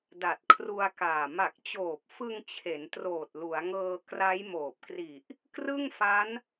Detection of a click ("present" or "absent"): absent